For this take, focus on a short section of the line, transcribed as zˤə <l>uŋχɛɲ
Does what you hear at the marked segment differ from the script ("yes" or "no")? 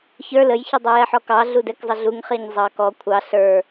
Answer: yes